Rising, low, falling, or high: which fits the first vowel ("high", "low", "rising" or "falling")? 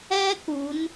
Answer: high